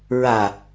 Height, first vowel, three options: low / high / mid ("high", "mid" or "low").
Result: low